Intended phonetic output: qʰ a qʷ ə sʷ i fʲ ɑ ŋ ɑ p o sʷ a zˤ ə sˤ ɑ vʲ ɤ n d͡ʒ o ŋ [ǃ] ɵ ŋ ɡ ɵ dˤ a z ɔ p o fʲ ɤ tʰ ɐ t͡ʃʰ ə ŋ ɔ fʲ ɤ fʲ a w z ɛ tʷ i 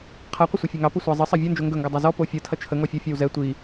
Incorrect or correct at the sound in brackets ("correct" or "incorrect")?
incorrect